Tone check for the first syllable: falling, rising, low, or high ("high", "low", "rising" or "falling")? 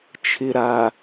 low